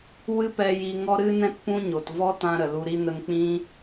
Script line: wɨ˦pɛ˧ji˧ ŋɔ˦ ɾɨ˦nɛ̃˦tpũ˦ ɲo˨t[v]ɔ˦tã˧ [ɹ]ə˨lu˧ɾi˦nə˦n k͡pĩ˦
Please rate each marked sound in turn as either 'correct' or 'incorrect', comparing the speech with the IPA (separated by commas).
correct, incorrect